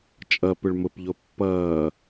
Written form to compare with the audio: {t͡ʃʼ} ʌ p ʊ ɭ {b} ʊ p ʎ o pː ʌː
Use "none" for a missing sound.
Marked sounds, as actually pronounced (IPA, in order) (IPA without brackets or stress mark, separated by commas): t͡ʃʼ, m